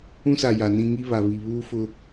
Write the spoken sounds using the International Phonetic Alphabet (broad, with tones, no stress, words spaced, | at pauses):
ũ˦sa˨ ja˨nĩ˦ ŋi˦βa˨ βi˨βuː˦ fʊ˦